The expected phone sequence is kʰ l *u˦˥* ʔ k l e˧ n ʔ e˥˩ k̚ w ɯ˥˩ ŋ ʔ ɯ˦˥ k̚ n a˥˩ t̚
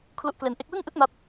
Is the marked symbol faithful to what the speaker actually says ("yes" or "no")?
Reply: yes